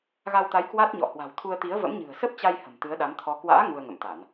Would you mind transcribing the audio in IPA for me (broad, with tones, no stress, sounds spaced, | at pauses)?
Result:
ɣ a˧ w t̪ a˨˦ j k w a˦˥ t̚ ɲ ɔ̰˧˨ h w a̤˨˩ w t̪ʰ u˧ ə̯ t̪ i˨˦ ə̯ v ə̰˧˥ m ɲ ɨ̤˨˩ ə̯ s ə˦˥ p̚ t͡ɕ a˧ j h ə̤˨˩ m t̪ ɨ˨˦ ə̯ ɗ a˨˦ m t̪ʰ ɔ˨˦ k w a̰ː˧˥ ŋ u˧ ə̯ ŋ ə̰˧˨ m t̪ a˧˩˨ n